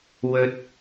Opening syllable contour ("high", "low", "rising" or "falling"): low